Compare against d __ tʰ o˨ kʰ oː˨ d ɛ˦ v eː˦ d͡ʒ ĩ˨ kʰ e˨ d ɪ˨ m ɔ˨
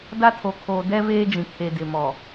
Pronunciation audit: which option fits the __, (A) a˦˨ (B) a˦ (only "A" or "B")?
B